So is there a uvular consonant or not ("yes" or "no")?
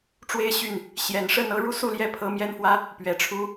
no